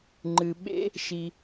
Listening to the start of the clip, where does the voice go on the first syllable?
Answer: low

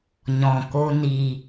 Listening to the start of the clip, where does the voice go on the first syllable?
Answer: low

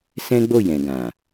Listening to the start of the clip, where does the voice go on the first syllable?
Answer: high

